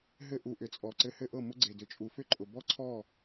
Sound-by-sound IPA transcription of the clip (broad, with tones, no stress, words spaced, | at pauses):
ɦɘ˧ ʔu˨ʔʏ˨t͡sʼɔ˨ ǀɘ˧hɘ˦ʔɤ˦˨ mʊ˧ɡ͡ǀe˨dʏ˨t͡ʃʼu˨ fʏ˧ǃʼʊ˨ bɔ˦ǀʰɔ˦˨